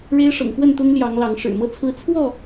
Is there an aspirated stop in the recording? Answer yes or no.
yes